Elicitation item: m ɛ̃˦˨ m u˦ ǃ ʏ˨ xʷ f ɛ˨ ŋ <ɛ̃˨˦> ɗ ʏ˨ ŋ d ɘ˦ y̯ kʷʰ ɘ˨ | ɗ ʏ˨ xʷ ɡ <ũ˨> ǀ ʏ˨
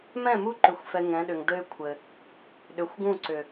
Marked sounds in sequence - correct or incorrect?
correct, incorrect

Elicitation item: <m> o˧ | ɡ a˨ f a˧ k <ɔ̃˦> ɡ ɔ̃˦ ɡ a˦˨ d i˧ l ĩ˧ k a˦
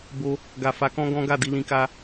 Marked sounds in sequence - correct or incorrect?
incorrect, correct

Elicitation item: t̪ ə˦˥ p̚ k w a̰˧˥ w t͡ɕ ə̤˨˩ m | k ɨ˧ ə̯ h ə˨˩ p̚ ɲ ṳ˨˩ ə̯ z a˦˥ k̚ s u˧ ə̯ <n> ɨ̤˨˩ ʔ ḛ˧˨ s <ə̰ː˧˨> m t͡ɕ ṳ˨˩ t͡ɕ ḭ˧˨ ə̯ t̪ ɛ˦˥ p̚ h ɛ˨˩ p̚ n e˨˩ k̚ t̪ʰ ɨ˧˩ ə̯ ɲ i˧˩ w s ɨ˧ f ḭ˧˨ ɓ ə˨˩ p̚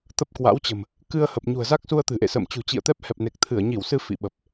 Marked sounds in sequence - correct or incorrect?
incorrect, correct

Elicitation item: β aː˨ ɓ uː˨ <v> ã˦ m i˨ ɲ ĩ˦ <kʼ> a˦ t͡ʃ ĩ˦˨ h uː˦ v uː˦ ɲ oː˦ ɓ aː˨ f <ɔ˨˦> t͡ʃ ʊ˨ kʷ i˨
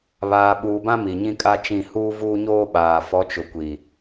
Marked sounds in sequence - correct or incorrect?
incorrect, correct, correct

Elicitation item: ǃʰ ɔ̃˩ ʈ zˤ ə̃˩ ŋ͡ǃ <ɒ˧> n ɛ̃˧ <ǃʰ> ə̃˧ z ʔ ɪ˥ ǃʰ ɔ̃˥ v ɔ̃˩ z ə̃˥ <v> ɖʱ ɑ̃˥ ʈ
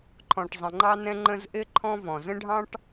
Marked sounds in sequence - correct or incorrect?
incorrect, incorrect, incorrect

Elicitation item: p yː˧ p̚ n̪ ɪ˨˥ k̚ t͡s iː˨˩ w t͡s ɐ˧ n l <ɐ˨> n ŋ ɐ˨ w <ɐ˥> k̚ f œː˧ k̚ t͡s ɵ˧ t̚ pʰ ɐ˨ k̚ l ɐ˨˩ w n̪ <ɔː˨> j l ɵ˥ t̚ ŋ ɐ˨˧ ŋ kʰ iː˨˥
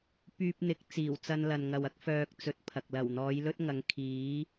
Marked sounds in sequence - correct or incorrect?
correct, correct, incorrect

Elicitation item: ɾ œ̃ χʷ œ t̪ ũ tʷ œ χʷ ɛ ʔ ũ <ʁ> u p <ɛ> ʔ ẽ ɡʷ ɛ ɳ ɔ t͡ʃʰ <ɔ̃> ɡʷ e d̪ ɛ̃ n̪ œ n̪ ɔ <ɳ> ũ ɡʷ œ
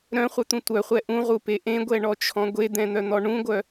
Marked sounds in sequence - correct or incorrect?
correct, incorrect, correct, correct

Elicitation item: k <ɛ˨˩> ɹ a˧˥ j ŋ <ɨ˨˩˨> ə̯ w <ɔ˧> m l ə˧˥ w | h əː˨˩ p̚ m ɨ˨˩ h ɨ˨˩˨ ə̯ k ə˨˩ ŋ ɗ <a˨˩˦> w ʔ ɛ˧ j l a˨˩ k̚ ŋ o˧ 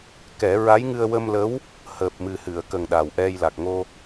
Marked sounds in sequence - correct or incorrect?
incorrect, incorrect, incorrect, incorrect

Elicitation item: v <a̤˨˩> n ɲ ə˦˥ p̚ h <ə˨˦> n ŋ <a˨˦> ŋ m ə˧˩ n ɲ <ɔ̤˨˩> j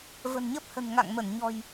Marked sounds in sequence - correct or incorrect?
incorrect, incorrect, incorrect, correct

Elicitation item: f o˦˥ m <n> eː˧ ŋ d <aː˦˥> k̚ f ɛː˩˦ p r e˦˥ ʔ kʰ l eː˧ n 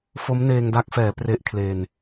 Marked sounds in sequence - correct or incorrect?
correct, incorrect

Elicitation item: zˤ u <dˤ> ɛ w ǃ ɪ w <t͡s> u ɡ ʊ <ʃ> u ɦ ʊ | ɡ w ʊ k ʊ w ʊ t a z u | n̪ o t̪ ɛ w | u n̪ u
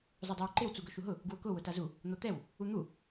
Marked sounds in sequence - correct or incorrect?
correct, correct, correct

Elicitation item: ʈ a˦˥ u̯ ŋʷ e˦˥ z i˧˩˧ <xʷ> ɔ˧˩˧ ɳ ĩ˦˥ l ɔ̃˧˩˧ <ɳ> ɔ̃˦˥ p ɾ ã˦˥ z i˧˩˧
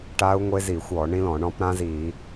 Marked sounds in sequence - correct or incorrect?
correct, correct

